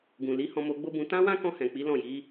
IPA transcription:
ɡ ũ˨ l i˨˦ h ɔ̃˧ m o˧ ɡ͡b o˦ b ũ˧ t ã˦ w ã˦ k ɔ̃˧ h ɛ̃˨ k͡p i˨˦ l ɔ̃˦˨ j i˨˦

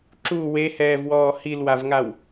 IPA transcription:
ǁ u w e h ɛː v w ɔː h i l w a v ŋ a w

